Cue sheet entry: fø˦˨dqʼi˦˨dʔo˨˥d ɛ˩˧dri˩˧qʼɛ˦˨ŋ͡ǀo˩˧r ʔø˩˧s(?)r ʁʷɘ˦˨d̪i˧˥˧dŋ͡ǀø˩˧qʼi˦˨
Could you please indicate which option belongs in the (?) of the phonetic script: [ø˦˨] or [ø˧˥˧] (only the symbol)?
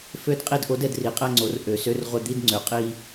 ø˧˥˧